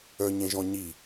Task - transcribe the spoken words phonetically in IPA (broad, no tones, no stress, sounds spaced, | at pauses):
œ ɲ ẽ ʒ ɔ̃ ɲ i